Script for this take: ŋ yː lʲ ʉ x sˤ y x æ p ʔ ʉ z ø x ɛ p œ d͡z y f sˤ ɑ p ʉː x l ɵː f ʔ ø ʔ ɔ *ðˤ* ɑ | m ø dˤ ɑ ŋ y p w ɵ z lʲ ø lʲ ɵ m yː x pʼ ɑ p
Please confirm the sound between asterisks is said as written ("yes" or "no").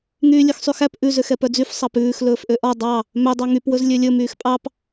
no